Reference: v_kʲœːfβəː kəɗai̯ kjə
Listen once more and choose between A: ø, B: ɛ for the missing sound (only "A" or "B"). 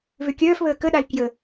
A